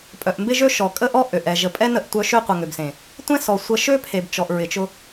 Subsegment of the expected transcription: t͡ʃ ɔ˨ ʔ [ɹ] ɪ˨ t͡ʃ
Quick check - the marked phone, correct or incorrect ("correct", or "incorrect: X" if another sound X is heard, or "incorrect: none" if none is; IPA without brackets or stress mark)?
correct